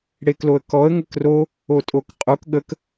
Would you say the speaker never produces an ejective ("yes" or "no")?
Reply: no